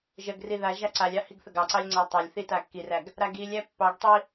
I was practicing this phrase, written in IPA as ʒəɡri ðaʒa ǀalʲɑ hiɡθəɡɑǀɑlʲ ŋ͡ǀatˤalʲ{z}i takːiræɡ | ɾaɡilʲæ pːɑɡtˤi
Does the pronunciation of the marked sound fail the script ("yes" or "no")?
yes